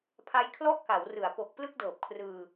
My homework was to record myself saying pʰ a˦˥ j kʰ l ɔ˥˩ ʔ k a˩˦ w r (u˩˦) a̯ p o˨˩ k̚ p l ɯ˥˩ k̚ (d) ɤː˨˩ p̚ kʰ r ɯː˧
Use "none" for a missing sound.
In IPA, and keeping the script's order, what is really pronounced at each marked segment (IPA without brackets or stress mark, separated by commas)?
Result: ɯ˩˦, d